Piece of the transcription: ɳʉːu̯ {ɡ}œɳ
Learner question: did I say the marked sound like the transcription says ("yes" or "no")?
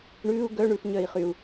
yes